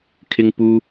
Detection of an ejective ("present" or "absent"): absent